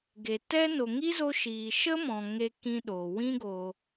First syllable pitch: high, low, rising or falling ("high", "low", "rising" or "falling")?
low